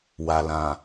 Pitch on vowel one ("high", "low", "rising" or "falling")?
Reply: low